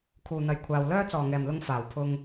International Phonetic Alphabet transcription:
kʰ uː˨ n̪ ɐ˨˧ j kʷʰ aː˨ w l œː˧ t͡s ɔː˨˩ ŋ ɛː˨˩ m l ʊ˨ ŋ f aː˨˩ w pʰ ʊ˧ ŋ

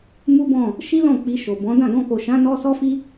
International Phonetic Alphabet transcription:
m u˦ b ɔ̃˦˨ | ʃ i˦ l ɔ̃˦˨ k͡p i˧ ʃ o˨ b ɔ̃˨˦ d ã˦˨ ɡ ɔ̃˧ k o˨ ʃ ã˨˦ n ɔ˦ s ɔ˦ f i˦

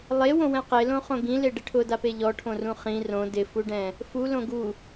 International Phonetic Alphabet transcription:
lˠ e w õ w ɛ̃ q e l õ χ õ ɡ ĩ l e ɖ ɪ ʈʰ ʊ d a p e ʎ ɔ ʈʰ õ r ũ χ ĩ r õ d ɪ f u ɖ ɛ̃ | f u l õ ɡ u

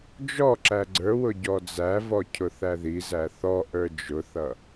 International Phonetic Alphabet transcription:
d͡ʒ ɔ ǁ æ ɡ͡ǀ ə˞ w ʊ ɟ ɔ d͡z æ v ɔ cʰ ʊ θ æ ð i z æ θ ɔ ʔ ə˞ d͡ʒ ʊ θ ʌ

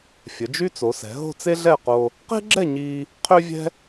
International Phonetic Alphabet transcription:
fʲ ə˩˧ d͡ʒ y˥ t͡s o˩˧ s ɛ̤˩˧ ɦ o̤˥˧ t͡s e˥ ɮ ɛ˥˧ q o˧ | q e̤˥ ɡ͡ǁ ɛ˥˧ ɲ iː˧ | qʰ ø˥ vʲ ɛ̤˥

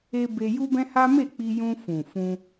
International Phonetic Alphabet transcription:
e˧ b e˧ j u˦ b ɛ̃˦ h a˦ m e˦˨ k͡p i˧ j ũ˧ f ũ˨ f ũ˧

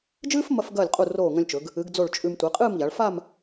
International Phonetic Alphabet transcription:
d͡ʒ ɨː˥ f m ɐ˧ f ɡ ɐː˧˩ lʲ qʼ u˧˩ r oː˧˩ ŋ ɐ̃˧ lʲ t͡ʃ ɵ˩˧ ɡ | ɨ˩˧ ɡ d͡z o˧˩ ɭ t͡ʃʼ ʉ˧ m tʷ i˩˧ qʼ ɨː˥˧ m ʎ a˩˧ ɭ f a˥˧ m

